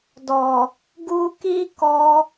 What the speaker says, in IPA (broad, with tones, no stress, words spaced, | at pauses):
dɔ˨ | ɡu˧ki˦kɔ˧